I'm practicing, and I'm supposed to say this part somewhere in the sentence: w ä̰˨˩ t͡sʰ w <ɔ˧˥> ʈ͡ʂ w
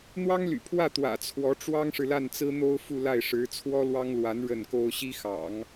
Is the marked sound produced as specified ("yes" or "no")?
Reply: yes